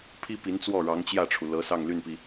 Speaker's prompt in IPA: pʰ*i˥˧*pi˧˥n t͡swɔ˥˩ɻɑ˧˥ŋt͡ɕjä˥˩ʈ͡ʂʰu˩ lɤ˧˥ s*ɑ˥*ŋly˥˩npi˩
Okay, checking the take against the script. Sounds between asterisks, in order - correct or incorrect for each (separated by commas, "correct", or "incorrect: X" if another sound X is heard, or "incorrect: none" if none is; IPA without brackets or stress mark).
incorrect: i˥, incorrect: ɑ˥˧